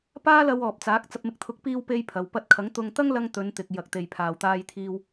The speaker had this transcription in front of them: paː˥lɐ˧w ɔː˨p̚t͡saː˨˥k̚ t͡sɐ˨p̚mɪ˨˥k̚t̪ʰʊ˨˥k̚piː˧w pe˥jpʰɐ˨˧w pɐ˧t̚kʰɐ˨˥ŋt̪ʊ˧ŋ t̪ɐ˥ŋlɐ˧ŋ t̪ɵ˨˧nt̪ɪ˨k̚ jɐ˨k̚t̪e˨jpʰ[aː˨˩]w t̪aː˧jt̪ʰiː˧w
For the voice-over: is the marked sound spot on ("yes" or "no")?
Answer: no